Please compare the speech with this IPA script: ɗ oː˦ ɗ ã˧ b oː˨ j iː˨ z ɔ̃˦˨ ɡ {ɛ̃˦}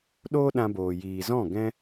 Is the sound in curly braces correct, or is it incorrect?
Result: correct